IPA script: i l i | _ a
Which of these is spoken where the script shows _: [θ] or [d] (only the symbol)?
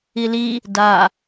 d